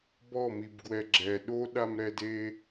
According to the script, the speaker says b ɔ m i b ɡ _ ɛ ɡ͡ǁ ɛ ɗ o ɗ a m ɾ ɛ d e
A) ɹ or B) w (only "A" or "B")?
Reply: B